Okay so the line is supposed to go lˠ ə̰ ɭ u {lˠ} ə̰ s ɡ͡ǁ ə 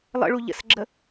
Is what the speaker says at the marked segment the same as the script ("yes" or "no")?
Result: no